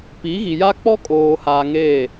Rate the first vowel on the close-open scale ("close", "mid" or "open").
close